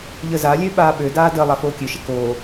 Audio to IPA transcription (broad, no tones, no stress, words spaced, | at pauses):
ʎəzalʲø ɓaːɓødaː də lˠafoːkʲøʃə koː